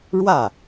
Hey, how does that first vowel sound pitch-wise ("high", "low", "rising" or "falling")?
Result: falling